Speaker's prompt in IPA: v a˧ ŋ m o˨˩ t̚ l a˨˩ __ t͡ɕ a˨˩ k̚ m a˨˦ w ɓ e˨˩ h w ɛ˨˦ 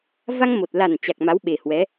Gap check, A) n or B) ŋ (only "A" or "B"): A